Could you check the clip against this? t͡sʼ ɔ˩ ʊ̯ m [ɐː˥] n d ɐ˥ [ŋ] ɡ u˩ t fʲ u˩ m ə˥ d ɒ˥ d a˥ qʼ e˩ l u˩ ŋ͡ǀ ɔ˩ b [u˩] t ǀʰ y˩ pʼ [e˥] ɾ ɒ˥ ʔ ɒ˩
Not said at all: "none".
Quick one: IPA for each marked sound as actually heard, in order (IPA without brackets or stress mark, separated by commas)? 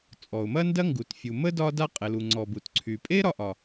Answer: ɐ˥, ŋ, u˩, e˥